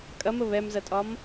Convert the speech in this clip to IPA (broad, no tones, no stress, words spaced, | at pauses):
kʼɐmə βɛmzɐtʼɒm